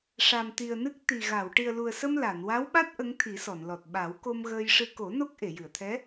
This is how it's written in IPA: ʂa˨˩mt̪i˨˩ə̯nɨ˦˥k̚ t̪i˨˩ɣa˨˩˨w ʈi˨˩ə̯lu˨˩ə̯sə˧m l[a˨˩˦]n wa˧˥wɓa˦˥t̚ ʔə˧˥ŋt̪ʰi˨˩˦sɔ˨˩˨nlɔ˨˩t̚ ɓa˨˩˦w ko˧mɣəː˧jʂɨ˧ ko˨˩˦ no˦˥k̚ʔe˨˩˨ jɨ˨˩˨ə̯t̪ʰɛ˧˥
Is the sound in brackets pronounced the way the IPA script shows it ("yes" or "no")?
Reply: no